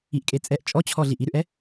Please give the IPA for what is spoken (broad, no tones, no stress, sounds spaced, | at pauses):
i ʔ kʼ e t͡sʼ ɛ ʔ t͡ʃʼ ɔ t͡ɕʰ ɔ ɮ i ʔ i ɾ ʉ ʔ ɛ